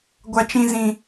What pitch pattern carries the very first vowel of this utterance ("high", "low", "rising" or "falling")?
high